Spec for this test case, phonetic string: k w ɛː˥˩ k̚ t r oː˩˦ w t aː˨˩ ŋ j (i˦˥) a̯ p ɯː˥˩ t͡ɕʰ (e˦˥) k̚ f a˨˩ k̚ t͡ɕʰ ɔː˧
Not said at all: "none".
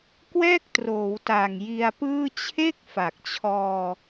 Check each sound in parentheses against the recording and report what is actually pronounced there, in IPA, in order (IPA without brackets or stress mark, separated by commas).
i˧, e˥˩